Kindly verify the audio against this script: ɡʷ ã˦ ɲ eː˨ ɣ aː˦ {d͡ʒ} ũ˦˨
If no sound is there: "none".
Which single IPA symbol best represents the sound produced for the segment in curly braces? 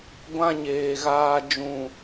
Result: d͡ʒ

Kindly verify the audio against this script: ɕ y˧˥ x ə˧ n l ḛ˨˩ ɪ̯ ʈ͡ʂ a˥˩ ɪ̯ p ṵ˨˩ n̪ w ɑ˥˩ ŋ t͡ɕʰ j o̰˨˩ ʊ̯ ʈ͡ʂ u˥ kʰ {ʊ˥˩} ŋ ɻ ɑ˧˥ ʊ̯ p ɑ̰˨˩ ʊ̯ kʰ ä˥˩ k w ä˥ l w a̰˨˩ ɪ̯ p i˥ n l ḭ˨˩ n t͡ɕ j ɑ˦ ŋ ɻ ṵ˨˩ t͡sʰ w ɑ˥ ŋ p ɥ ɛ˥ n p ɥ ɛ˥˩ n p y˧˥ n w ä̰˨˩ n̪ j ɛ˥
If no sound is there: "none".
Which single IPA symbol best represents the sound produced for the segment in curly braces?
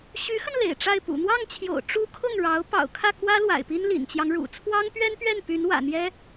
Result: ʊ˥˩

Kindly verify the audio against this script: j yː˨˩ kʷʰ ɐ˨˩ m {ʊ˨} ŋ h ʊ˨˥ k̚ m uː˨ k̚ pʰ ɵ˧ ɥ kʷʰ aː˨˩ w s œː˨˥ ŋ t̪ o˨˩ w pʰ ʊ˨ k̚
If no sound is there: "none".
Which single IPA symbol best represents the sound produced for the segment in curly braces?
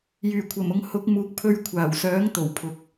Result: ʊ˨˧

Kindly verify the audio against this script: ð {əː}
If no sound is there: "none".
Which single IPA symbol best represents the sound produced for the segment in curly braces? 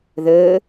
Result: əː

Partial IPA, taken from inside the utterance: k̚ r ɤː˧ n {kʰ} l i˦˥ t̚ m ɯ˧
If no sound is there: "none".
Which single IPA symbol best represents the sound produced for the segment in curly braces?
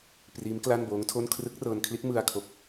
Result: kʰ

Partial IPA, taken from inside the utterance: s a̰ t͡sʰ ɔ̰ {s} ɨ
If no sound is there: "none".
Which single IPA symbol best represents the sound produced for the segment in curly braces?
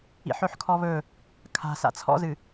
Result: z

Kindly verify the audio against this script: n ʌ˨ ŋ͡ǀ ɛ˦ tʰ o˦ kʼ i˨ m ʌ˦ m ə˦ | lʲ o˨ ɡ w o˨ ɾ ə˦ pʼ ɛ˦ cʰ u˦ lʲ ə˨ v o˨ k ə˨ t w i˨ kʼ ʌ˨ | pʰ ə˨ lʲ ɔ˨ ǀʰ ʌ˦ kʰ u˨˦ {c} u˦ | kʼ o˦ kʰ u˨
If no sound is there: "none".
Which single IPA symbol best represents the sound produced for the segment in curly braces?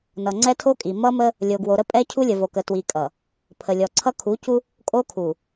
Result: c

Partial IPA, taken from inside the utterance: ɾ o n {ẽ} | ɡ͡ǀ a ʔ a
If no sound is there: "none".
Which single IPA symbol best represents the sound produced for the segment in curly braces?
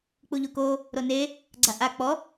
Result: e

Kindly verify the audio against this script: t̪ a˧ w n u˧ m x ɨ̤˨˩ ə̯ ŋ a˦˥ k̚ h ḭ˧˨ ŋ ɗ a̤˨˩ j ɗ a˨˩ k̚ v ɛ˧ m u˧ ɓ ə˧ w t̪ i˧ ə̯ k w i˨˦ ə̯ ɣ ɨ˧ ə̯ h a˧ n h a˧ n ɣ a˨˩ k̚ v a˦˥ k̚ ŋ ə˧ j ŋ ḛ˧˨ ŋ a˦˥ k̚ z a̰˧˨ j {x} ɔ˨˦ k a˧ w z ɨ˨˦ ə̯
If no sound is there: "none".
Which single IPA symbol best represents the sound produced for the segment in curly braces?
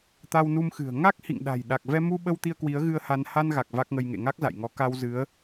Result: ŋ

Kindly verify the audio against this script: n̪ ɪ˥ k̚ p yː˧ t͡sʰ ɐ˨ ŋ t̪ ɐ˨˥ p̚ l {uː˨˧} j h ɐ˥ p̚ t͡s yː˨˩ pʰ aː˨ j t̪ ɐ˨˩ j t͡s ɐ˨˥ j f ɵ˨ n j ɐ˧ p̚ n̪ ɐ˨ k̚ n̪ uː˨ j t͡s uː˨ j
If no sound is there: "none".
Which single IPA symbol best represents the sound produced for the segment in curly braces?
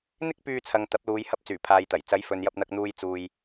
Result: uː˨˧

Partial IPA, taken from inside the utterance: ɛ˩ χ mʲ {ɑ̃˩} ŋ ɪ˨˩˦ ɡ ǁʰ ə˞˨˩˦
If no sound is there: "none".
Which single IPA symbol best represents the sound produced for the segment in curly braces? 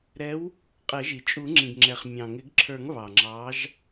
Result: ɑ̃˩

